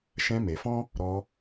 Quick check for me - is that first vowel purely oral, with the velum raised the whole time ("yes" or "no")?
no